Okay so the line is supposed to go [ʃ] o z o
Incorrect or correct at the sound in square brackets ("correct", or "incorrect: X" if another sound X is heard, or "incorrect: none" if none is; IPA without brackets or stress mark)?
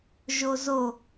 incorrect: ʒ